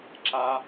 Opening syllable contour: high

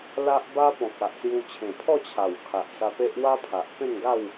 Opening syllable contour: high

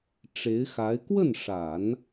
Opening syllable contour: rising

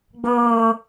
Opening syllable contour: low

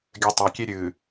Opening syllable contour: low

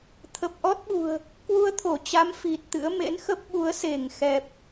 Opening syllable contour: low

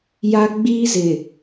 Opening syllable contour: high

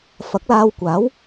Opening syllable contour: rising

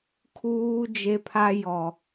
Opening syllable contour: high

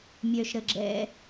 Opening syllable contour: low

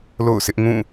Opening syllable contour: falling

